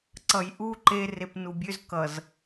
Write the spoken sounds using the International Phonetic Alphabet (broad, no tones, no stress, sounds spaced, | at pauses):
ǀ ʌ j ʔ u ǃ e r e p n u bʲ ø z k ʌ z